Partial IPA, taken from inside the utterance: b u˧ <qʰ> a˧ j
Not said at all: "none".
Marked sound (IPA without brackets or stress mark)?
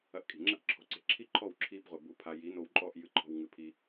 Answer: pʰ